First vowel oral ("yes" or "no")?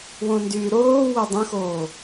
no